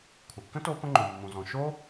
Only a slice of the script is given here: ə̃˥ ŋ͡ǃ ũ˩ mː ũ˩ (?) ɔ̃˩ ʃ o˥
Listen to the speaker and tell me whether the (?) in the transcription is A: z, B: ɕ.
A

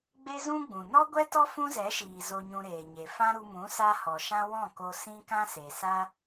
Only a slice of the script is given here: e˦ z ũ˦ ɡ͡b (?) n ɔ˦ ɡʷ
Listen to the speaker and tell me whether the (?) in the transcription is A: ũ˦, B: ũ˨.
B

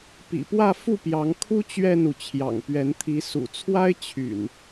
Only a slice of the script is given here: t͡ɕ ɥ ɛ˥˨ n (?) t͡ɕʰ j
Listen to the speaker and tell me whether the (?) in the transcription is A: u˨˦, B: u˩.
B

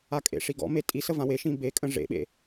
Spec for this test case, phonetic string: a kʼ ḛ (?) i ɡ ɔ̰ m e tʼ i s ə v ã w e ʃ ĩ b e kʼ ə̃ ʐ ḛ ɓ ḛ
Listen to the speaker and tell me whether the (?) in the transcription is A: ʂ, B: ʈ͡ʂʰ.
A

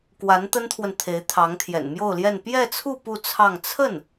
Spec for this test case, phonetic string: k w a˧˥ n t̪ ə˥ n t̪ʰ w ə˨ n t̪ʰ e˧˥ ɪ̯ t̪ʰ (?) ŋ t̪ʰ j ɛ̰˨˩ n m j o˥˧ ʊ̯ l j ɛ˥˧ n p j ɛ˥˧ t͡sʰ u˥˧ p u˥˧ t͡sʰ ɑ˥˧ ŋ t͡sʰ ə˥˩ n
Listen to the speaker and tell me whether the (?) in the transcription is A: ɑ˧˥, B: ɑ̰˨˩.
A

